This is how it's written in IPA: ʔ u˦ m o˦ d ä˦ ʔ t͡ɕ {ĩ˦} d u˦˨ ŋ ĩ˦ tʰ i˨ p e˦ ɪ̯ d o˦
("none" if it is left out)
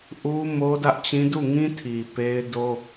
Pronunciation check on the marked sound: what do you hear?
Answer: ĩ˦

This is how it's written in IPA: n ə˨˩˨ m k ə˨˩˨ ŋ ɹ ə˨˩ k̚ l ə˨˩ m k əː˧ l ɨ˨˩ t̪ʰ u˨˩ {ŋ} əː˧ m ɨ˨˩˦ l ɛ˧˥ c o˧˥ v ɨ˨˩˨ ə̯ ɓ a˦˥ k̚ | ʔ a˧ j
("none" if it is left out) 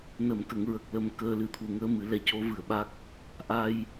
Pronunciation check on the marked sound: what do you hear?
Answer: ŋ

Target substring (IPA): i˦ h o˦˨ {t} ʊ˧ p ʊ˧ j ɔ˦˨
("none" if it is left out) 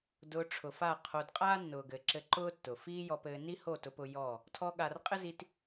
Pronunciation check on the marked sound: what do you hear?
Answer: t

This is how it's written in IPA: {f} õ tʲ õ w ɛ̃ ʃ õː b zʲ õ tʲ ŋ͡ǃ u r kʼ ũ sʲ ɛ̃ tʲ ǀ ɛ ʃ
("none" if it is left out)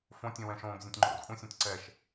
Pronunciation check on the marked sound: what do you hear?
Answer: f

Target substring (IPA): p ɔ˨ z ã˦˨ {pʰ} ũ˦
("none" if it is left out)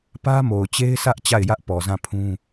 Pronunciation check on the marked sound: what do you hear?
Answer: pʰ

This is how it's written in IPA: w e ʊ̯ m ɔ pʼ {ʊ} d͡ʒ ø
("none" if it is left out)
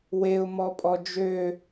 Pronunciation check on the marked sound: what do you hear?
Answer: ɔ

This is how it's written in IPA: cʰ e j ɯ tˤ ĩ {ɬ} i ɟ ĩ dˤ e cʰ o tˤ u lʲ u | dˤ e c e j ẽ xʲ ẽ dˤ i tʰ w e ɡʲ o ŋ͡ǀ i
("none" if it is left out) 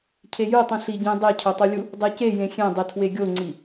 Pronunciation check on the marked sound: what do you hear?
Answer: ɬ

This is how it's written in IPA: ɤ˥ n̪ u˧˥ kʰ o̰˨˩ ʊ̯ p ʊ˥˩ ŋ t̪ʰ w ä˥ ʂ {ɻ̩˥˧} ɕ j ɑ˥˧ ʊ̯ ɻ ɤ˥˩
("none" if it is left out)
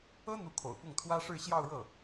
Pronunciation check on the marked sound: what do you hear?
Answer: ɻ̩˥˧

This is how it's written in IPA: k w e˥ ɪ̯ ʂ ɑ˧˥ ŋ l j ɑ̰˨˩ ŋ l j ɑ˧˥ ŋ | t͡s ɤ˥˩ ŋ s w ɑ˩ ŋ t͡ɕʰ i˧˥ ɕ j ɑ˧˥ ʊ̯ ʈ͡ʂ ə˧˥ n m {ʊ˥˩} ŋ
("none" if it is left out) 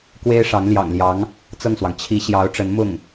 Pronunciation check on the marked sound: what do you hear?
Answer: ʊ˥˩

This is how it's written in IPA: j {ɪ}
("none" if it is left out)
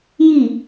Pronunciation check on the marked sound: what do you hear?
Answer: i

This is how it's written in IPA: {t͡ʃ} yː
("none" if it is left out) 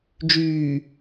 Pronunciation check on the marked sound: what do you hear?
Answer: d͡ʒ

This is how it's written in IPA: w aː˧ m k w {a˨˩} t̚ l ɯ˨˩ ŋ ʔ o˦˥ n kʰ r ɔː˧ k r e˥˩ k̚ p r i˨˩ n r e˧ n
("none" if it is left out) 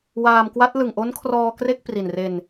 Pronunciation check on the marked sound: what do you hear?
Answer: a˦˥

